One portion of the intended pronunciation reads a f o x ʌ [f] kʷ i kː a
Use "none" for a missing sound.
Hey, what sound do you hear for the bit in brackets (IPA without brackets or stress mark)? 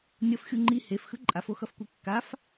f